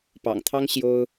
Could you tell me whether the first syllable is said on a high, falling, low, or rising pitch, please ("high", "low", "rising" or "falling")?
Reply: low